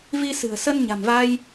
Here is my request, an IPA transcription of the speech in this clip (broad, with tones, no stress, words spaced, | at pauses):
vi˧sɨ̤˨˩ə̯ sə˧nɲa̤˨˩mva˧j